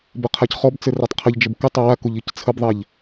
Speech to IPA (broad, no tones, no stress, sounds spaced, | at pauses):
b ə qʰ a c χ ɔ b t͡s ɘ r a tˤ qʰ ə ʎ d͡ʒ ə b k ɘ tˤ ɘ w a k u ʎ i c t͡sʰ ə b ðˤ ɛ ʎ